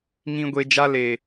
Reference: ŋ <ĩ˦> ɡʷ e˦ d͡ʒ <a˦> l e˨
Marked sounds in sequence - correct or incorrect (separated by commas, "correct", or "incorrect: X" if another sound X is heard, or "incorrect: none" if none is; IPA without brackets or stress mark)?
correct, correct